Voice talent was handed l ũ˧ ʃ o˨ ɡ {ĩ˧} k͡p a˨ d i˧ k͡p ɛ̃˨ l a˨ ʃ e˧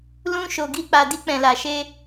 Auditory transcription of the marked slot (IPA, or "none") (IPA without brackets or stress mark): i˧